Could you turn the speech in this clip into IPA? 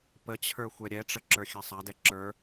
p ə t͡ɕʰ ə˞ xʷ ɛ ɾʲ ɛ ʈ͡ʂ ə ǁ ə˞ xʲ a sˤ a d ɛ ǁ ə˞

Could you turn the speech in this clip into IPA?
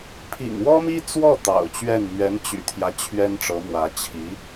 pʰ ḭ˨˩ ŋ w ɔ˥ m i˥ t͡s w ɔ˥˩ t̪ ɑ̰˨˩ ʊ̯ t͡ɕ ɥ ɛ˥˩ n m ɥ ɛ˧˥ n t͡ɕ y̰˨˩ t̪ʰ j ä˦ t͡ɕʰ ɥ ɛ˥ n ʈ͡ʂ ɤ˧˥ m w ä˧˥ t͡ɕʰ i˧˥

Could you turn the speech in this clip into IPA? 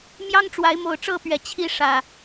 m j ɑ˦ ŋ ʈ͡ʂ w a˨˦ ɪ̯ m o˨˩ ʊ̯ ʈ͡ʂ ɤ˥˨ p ɥ ɛ˨˩ t͡ɕʰ i˦ ʂ ä˨˩

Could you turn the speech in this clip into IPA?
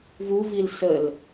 v u v i l s ə l

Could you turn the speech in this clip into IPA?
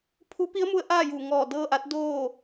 pʰ u˧˥ p i˧˥ ə̯ m u˧ ə̯ ʔ aː˥˨ j uː˧˩ ŋ ɔː˧˩ d ɤː˥˨ ʔ a˧˥ t̚ d oː˥˨

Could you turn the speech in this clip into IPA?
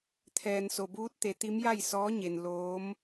t̪ʰ ɛː˩ n s o˩ b uː˧˥ t̚ t̪ e˩˧ t̪ i˧˥ m j a˥˨ j s ɔː˧˥ ɲ e˩ n l oː˧˥ m

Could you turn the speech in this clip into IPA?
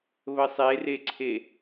β ə sˤ e r e ǀʰ e

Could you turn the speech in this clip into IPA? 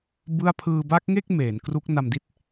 b ɯ˥˩ a̯ pʰ ɯː˧ b a˦˥ k̚ ŋ e˥˩ k̚ m eː˩˦ n k r u˦˥ k̚ n a˧ m d i˥˩ t̚

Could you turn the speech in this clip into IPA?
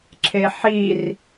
ǁʰ e ħ i r

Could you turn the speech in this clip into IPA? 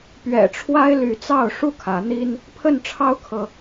p ɥ ɛ̰˨˩ ʈ͡ʂʰ w a˦ ɪ̯ l y˨˦ t͡s ɑ˥˨ ʊ̯ ʂ u˥˨ kʰ ä˨˦ n̪ i˦ n | pʰ ə˥˨ n ʈ͡ʂʰ ɑ˦ ʊ̯ kʰ ɤ˨

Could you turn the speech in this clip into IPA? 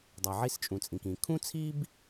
dˤ e˩ ʕ i˥ s t͡ʃʼ ũ˩ t͡sʼ ĩ˩ k ĩ˩ kʰ ũ˥ t͡sʰ i˥ b

